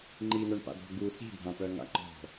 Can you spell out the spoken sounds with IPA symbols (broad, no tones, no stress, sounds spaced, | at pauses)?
ŋ͡ǃ i n̪ œ ɳ p a̰ d ɔ̤ ɡ u s i̤ dʱ ã p œ ŋ a̰ ŋ͡ǃ ɔ̤